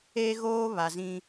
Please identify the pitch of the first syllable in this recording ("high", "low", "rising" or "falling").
high